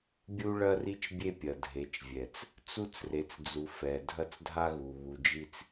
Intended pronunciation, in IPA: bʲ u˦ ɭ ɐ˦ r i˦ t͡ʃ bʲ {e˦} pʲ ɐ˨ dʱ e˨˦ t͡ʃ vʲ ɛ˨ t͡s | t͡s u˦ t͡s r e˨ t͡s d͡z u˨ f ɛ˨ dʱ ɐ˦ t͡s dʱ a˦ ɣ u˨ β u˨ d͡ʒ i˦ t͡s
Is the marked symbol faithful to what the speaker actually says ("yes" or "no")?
yes